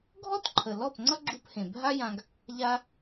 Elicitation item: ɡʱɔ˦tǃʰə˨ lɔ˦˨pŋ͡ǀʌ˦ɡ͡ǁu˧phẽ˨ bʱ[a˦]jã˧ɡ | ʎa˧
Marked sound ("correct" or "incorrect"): correct